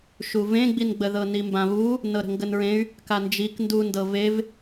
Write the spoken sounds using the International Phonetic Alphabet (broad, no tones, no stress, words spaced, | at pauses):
ʃuvẽɡ͡binɡ͡bə ðɤnimbãβu | nɤɾə̤ŋɡənɹẽy̯ | kand͡ʒik ndundɤ vev